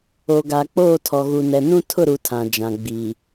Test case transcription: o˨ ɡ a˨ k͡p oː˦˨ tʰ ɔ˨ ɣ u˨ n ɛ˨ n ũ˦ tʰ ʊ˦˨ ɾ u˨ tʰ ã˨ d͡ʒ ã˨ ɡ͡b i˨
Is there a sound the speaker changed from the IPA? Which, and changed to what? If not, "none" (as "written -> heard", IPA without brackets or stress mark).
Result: none